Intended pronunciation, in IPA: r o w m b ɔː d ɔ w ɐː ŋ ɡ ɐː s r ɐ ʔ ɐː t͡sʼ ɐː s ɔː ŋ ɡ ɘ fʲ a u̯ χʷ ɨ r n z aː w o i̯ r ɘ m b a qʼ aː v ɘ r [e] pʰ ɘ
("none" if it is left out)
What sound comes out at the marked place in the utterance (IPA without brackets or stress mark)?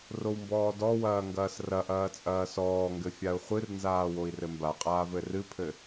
ɨ